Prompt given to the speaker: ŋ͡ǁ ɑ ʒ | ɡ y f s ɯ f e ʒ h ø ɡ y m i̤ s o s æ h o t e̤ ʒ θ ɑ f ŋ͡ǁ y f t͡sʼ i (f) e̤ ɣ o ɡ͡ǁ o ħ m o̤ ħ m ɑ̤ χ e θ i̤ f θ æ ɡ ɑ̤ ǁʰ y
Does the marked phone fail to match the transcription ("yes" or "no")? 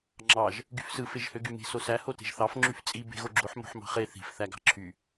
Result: yes